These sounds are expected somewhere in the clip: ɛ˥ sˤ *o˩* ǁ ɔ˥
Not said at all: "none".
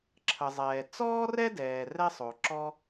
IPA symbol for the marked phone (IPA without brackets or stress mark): o˩